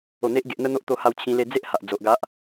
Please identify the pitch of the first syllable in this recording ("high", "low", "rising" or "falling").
low